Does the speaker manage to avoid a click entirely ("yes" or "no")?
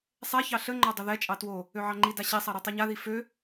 no